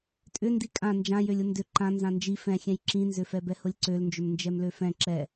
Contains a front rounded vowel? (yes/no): yes